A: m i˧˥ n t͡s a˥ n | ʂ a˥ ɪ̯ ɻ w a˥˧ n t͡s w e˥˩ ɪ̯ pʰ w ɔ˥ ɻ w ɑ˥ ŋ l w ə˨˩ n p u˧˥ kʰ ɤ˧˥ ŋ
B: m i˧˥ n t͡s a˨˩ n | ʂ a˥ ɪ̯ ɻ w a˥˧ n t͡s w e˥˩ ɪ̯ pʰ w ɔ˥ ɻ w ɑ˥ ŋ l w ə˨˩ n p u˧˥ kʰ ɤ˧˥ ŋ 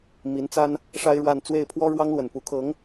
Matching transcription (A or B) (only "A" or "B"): A